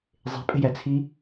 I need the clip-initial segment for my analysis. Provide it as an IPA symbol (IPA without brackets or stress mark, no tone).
zˤ